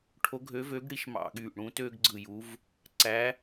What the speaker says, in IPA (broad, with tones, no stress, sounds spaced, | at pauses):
ʈʰ o˧˥ ɡʱ ø˧˥ v ø˧˥ ɡ ɽ i˧˥ ʃ m ɑ̰˦˨ ɠ yː˦˨ ʔ ɽ ũ˧˥ t øː˥ ɡ ɡ͡ǀ ɯ˦˨ j u˧˥ v | ǀ æ˧˥